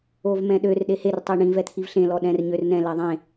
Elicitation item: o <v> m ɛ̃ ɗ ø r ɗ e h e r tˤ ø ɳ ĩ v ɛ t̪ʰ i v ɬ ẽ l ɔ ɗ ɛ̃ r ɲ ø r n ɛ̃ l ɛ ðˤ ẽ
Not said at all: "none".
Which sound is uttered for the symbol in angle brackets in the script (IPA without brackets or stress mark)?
v